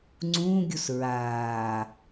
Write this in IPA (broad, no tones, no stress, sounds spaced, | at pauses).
ŋ͡ǀ ũː ɡʲ u s ɹ aː